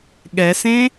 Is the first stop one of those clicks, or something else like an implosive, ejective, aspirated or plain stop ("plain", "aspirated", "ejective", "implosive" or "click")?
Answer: implosive